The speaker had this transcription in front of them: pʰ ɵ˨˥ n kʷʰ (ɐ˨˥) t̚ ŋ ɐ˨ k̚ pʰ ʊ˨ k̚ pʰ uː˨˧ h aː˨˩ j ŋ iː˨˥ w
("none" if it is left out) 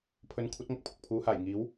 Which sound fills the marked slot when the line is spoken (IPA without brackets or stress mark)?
ɐ˨˥